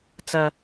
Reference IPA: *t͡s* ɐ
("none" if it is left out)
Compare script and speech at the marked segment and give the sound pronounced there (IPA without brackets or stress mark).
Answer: t͡s